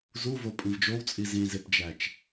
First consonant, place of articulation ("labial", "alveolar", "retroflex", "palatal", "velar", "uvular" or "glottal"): alveolar